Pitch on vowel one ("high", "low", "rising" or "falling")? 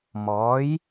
rising